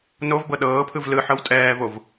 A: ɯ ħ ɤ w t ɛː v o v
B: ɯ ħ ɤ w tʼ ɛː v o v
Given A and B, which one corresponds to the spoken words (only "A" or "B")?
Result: B